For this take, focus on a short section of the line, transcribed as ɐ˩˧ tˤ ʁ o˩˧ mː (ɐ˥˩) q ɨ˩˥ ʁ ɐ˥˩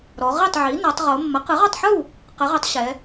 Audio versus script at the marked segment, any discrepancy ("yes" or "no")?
yes